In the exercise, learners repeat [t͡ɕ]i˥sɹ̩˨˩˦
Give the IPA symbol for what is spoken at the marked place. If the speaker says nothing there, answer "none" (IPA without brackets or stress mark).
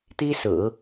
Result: t̪